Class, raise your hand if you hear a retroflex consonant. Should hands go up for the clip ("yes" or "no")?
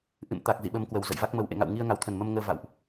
no